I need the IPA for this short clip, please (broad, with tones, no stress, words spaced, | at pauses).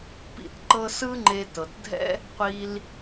pḭ˧tǃɤ˧ sɯ˥ŋ͡ǃe˧tɤ˩tdʱɛ̰˥ | qʷi˧l